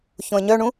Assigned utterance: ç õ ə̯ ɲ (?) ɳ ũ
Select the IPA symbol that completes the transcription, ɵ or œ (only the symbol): œ